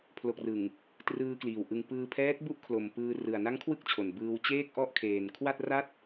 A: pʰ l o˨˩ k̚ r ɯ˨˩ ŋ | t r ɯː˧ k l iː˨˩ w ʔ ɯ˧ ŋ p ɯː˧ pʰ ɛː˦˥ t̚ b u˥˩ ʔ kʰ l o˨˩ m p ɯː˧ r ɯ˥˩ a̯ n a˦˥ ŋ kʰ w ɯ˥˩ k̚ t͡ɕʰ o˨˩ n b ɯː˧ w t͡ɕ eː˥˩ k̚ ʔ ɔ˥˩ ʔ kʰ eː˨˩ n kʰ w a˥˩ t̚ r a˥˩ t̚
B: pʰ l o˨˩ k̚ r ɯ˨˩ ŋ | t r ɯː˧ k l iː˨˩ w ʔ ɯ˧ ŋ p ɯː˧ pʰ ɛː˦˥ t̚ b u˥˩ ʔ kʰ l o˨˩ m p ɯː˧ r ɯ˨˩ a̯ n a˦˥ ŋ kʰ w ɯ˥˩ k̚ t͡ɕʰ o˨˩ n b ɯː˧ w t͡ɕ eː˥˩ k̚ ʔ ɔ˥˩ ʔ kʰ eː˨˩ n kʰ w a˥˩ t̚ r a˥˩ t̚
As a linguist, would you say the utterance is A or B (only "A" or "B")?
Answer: B